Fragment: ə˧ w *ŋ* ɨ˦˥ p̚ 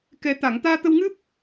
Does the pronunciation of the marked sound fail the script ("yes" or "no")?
no